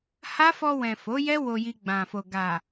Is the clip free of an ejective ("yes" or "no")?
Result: yes